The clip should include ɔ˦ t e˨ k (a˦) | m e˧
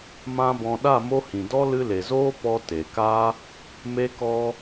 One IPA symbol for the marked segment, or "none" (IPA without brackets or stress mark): a˦